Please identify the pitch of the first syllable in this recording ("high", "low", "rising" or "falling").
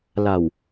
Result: low